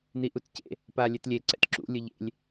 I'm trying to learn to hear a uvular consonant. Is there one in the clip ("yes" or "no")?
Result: no